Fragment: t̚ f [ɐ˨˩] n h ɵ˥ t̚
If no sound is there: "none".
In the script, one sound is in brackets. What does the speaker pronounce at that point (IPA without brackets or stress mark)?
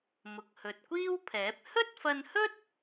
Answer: ɐ˧